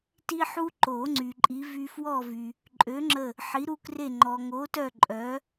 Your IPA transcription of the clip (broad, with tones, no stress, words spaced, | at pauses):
ti˦ħu˦ ǃo˨˩˦ ŋ͡ǀy˨ǃʼi˨˥vy˦ fwɔ˦˨vy˨ | ǃʼø˨˥ŋ͡ǁə˦˨ | ħi˨˥ɾu˦kre˦˨ ŋ͡ǃɔ˨ŋo˨˥tœ˦˨ ǃʼœ˨˥